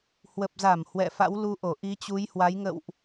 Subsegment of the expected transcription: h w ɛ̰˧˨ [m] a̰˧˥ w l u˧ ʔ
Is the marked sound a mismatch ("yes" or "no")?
yes